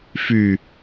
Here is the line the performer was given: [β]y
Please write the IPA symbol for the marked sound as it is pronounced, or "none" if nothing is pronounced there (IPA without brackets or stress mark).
f